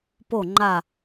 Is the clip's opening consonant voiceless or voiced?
voiceless